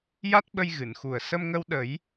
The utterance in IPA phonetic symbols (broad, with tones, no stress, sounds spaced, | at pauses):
j a˦˥ t̚ ɓ ə˧ j ɣ ɨ˨˩˨ n x u˨˩ ə̯ s ə˧ m ŋ ə˧ w ɗ ə˨˩˦ j